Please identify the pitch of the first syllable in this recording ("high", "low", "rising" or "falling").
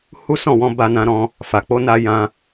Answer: high